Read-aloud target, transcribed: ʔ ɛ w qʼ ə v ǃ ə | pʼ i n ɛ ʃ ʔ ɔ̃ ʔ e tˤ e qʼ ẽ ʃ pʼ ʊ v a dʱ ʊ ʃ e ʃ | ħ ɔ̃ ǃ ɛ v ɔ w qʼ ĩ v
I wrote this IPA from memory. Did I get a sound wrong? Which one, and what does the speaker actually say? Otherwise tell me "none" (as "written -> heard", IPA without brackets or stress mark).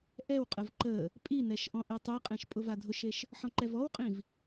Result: none